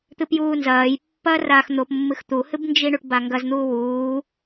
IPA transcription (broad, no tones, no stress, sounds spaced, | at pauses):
t̪ ɨ p j uː n z ɐː j pː ɐː r aː x n̪ o p mː ɨ x t̪ u h ɨ b n d͡ʒ i ɳ u ʈ b a ŋ ɡ ɐ z n̪ uː w uː